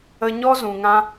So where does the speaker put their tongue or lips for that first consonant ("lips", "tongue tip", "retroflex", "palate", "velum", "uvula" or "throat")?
palate